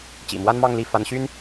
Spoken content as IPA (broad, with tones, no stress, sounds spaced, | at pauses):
t͡ɕ ḭ˨˩ m w a˥ n m ɑ˥˧ ŋ l i˥˩ f a˧˥ n ɕ y˥ n